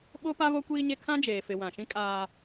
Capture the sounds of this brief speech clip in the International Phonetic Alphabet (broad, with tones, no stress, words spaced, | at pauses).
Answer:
ɓo˦pa˦ βo˦kʷiː˦ɲe˦ kʰã˦d͡ʒeː˨fɪ˨ wã˨ʃĩ˦ kʼaː˦